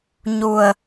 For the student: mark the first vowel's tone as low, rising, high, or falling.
low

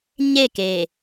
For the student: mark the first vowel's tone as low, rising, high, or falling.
falling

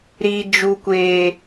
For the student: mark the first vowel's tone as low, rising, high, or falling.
high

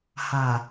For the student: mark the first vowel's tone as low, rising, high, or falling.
low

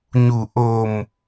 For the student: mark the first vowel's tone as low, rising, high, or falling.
low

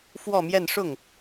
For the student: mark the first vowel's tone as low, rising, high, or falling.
falling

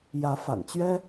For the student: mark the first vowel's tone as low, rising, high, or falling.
rising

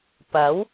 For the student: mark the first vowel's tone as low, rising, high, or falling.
rising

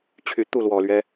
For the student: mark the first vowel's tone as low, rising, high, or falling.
low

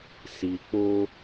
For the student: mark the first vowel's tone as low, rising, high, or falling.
low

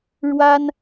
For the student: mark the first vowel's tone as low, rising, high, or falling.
high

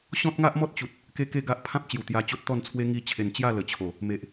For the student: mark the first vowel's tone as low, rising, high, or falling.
high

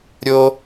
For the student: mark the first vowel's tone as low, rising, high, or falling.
high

